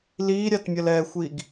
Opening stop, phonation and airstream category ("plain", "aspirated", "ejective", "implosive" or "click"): plain